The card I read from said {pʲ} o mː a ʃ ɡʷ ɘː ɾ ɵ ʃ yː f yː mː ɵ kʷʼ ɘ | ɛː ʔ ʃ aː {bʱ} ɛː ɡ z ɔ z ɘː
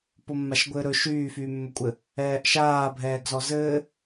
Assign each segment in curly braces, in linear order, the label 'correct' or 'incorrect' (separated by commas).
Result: incorrect, correct